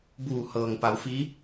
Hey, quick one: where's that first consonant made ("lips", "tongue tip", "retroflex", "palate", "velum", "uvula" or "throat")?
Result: lips